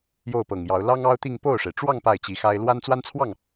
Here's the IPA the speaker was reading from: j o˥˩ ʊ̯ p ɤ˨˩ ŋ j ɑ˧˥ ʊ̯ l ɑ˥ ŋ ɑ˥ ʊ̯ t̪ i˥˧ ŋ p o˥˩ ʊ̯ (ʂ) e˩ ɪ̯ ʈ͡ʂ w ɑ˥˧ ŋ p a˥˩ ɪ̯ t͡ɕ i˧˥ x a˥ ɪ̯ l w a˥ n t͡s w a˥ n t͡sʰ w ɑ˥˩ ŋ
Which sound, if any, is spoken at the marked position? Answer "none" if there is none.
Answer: ʂ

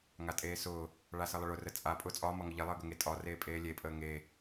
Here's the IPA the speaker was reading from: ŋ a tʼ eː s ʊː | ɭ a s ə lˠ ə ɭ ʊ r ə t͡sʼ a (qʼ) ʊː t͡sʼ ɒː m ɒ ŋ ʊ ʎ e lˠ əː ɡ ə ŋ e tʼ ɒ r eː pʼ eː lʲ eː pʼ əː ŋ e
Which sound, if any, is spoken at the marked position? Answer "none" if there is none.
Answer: pʼ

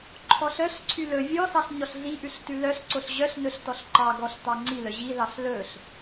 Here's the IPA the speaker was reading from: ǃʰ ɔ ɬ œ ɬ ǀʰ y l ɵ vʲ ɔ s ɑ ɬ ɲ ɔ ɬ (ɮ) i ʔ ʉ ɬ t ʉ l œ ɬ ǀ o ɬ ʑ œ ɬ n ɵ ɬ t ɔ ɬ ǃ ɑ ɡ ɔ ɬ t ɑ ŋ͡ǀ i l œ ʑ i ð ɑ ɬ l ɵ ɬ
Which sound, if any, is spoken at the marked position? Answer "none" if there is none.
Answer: ɮ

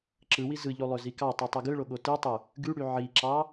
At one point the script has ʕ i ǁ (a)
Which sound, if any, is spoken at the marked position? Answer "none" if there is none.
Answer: ɑ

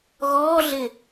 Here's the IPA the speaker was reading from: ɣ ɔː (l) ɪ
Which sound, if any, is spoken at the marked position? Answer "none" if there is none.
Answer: ɮ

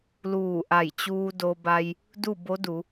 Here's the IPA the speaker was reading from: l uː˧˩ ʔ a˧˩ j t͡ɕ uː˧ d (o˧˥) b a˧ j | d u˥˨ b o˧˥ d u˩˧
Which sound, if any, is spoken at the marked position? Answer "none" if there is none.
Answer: o˧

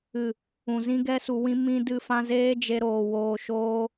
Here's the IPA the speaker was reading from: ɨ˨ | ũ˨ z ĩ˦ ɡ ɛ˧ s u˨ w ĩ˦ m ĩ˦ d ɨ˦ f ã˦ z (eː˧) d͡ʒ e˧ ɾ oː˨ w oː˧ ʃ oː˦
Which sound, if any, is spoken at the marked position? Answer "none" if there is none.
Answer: eː˦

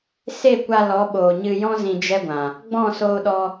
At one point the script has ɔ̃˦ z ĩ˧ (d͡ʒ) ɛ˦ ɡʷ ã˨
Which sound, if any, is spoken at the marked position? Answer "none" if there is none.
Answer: d͡ʒ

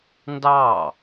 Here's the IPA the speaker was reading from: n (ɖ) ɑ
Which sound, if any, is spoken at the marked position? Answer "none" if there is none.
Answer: d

